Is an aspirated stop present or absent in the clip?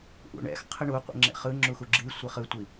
present